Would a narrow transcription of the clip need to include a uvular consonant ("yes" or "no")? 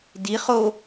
yes